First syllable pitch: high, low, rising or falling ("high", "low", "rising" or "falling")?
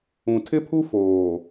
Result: low